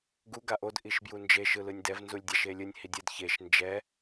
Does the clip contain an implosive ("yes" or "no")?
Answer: no